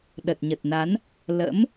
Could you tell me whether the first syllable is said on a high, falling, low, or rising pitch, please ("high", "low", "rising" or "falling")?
low